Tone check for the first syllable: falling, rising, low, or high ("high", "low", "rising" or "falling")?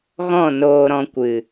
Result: falling